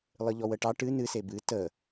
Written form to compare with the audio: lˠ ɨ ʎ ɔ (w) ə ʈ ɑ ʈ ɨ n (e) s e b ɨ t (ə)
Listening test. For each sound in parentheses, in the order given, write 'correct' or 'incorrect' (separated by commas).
correct, incorrect, correct